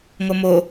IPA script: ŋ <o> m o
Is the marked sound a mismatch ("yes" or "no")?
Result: no